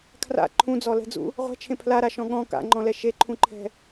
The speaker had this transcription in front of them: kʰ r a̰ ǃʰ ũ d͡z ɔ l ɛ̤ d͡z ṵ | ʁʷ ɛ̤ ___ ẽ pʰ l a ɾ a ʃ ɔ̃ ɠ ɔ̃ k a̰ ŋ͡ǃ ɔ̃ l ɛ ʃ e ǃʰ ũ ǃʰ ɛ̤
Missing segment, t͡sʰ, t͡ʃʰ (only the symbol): t͡ʃʰ